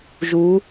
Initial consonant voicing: voiced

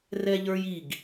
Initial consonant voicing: voiced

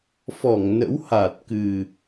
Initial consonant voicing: voiceless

